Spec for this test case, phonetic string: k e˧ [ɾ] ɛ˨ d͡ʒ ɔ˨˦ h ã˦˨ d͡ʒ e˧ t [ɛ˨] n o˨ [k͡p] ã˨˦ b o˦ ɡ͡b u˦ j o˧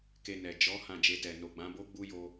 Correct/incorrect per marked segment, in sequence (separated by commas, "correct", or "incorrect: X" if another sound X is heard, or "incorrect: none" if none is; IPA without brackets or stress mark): incorrect: n, correct, incorrect: ɡ͡b